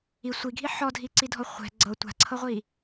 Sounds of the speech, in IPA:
i sʷ i ɡʱ i ħ ɔ dʱ i ǀ i dʱ ɔ χʷ ɛ̤ ɡ͡ǀ ɤ tʷ a̤ ǀʰ ɤ ʁʷ i

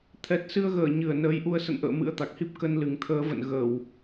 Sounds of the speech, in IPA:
t̪ʰ ɛ˨˩ t̚ s ɨ˧ ə̯ ɣ əː˧˩ ɲ ɨ˧˩ ə̯ n əː˨˦ j ʔ u˧ ə̯ s ə̰˧˨ n ʔ ə̰ː˧˨ m ɨ̰˧˥ ə̯ t̪ a˨˩ k̚ h i˦˥ p̚ k ə˧ n l ɨ˨˩ ŋ t̪ʰ əː˨˦ v ə̰˧˨ n ɣ ə˧˩˨ w

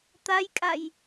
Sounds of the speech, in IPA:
t̪ a j kʼ a j

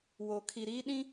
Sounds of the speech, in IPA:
w o˨ kʰ i˨ ɾ iː˦ ɗ ĩ˦

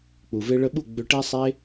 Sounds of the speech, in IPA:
k͡p u˨ v e˧ ɭ ə˧ ɓ u˦˨ ɡ͡b ʏ˧ ʈ e˦ sˤ e˦

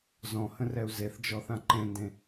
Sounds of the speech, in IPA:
z ɔ̃ h ə̃ r ɛ u̯ z e θ d͡ʒ ɔ θ ã ǃ ẽ n d ẽ

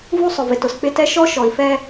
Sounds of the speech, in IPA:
v u˦ sˤ ʊ˨ v ɪ˨ t ʊ˨ s k͡p ɪ˦ t ɛ˦ ʃ ɔ˦ ʃ ɔ˨ i̯ f ɛ˦

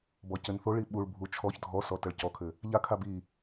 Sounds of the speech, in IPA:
b ɔ c ɘ n θ o ɭ i ɓ u ɭ bʱ u t͡ʃʰ ɔ ç dʱ ɔ s ɔ t ɐ ɭ c ɔ kʰ ɘ | ʎ a kʰ a b i

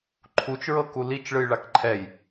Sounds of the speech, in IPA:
ǃʰ u t͡ʃ ɹ ɤ k u l i t͡ʃ ɭ ɯ j ɭ a k ǃʰ ɛ j

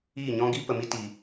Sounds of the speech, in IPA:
iː˦˨ ɲ ɔ̃˦ ɡ i˦ p ə˨ m i˧ t i˨

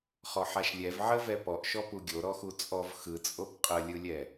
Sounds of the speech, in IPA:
χ ɔ ħ a ʃ lʲ ɛ v ʕ ə v ɛ p ɔ ʔ ʃ ɔ p u ɡʲ o ɾ ɔ x u t͡sʼ ɔ v x ɯ t͡sʼ o p qʼ ə lʲ ɯ lʲ ɛ

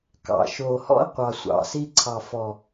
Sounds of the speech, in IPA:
k ɑ̰˨ ʃ oː˨ h ɔ̰˦ ə̯ qʷ ɑ˨ sʷ ɑ̰˨ s i˧ ǀʰ ɑ˨ f ɔ˨

